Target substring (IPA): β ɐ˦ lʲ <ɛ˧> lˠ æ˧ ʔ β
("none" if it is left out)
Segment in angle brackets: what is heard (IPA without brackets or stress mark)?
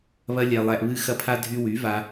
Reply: ɛ˧